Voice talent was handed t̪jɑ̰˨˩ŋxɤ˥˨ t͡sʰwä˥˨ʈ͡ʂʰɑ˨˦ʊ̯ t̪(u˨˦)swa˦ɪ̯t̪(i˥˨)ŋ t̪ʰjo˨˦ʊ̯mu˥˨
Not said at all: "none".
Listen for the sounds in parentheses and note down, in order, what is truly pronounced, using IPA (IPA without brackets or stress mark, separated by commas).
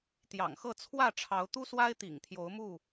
u˦, ḭ˨˩